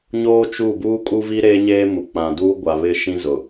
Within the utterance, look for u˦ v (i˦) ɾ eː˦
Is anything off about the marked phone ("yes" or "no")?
no